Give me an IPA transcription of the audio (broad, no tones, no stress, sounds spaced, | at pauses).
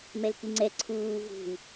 m ɛ l k i ŋ͡ǀ ɛ ǀʰ uː v ṳ i̯